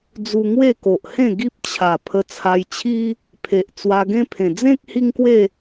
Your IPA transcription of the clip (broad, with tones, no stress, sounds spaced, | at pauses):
d͡z u˧ ŋ w e˥˧ k o˨ ʔ h ẽ˥˧ ɡ i˦ p̚ t͡ɕʰ a˨˩ pʰ ə˧ t͡sʰ a˧ j t͡ɕʰ i˦ | pʰ e˨ ʔ t͡s w a˧ ɡ ẽ˦ pʰ ẽ˨˩ d͡z ẽ˦ k̚ h i˦ ŋ k w e˥˧